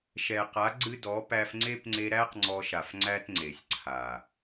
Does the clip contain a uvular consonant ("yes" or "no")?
yes